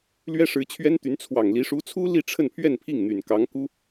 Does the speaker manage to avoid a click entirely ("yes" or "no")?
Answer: yes